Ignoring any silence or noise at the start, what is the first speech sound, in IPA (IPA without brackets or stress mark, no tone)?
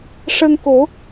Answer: ʂ